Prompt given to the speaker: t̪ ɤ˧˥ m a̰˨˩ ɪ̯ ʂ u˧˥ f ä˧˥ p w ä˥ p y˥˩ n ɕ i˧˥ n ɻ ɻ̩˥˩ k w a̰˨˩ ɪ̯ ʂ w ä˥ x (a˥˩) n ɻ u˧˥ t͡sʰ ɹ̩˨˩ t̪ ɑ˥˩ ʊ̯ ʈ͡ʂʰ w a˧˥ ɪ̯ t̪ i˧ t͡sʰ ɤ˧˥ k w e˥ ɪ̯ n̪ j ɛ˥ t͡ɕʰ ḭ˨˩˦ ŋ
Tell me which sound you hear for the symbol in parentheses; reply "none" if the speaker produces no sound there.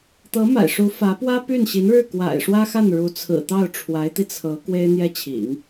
a˥˩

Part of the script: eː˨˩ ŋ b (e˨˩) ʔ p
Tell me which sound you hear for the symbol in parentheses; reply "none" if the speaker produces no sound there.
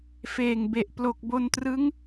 e˨˩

